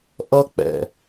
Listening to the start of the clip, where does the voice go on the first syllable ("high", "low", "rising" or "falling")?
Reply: high